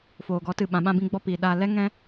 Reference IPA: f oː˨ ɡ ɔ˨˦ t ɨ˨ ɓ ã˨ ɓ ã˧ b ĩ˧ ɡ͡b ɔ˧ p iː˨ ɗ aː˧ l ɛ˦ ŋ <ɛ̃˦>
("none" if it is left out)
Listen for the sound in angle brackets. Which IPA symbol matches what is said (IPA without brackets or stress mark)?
ɛ̃˦